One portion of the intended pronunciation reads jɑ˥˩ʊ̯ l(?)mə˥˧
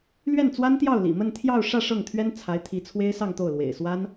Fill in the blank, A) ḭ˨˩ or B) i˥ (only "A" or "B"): A